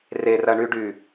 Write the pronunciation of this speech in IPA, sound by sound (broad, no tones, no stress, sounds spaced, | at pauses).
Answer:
r e r ɐ ɳ y ɖ y